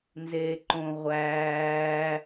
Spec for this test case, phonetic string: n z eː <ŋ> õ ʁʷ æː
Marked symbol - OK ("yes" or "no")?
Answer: no